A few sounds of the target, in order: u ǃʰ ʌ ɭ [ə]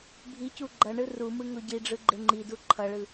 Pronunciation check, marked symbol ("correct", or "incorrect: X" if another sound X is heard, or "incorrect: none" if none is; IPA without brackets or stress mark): incorrect: ɯ